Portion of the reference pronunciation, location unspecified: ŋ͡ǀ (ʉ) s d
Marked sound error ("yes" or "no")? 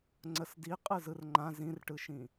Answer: yes